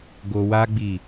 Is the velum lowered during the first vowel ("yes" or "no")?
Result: no